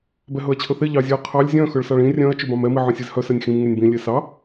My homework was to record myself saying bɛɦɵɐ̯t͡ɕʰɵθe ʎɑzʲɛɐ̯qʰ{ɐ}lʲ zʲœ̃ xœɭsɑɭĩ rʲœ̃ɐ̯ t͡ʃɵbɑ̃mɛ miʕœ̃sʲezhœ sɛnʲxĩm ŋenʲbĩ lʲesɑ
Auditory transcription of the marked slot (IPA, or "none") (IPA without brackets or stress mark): ɑ